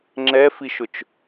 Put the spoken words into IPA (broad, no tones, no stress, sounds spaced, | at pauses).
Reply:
ŋ͡ǁ ɛ f i ʃ ʊ t͡ʃ